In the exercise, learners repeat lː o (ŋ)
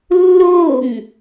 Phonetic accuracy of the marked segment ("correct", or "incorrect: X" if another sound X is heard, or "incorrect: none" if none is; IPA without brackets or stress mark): correct